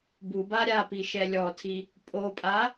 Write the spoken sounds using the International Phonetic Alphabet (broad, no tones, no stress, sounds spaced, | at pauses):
b u b a ɾʲ a p i ʃ ɛ lʲ ɔ tʰ i | pʼ o pʼ a